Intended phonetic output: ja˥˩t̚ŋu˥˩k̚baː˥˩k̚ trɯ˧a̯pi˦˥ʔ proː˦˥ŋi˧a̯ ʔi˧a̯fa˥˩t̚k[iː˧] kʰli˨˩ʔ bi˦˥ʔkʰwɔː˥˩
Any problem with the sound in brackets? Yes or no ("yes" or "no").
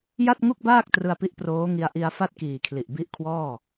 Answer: yes